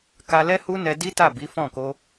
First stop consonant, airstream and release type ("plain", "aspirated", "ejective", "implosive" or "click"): plain